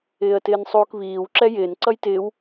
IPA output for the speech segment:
ɪː ə̯ t ɪː n sˤ uː k β iː w ǁ ɛ j ɪː n ǀ ʌ j t ɪː w

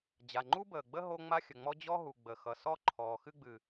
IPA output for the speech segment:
d͡ʑ a˩ ŋ͡ǃ u˥ b əː˩ ɡ͡b ə˥ ɦ o˥ ŋ͡m a˥ xʲ ə˩ ŋ͡m ɔ˥ d͡ʑ ɔ˥ ɦ u˩ ɡ͡b ə˩ x ʌ˩ s ɔ˥ ǃʰ ɔː˩ x ɨ˥ ɡ͡b ɨ˩

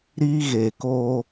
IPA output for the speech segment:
ɾ iː˦ ɣ e˨ k o˦

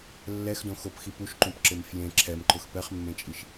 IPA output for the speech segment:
lː ɛ x d õ x o p x i p u ʃ ǃ ũ p ǁ ɪ m f j ẽ ǁʰ ɛ m ǃ ʊ x p ɛ χ mː ẽ t͡ʃʼ i ʃ

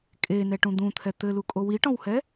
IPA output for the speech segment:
kʼ e n ɛ ʈ ũ d̪ ũ t̪ʰ ɛ t̪ ɘ l u kʼ o w i ʈ ɔ̃ w h ɛ

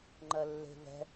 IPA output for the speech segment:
ŋ͡ǃ ɜ lː e̤ v ɛ̤

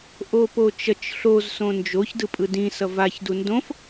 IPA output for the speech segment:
ʔ o p o t͡ʃ ʌ t͡ʃ ɬ o z s õ n d͡ʒ o ç d ɯ pʼ ɯ d ĩ s ʌ v a ç d u n d õ f

